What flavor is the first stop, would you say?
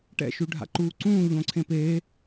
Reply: plain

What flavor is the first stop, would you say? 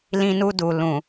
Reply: plain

